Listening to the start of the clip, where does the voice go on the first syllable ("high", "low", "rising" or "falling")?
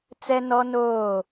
high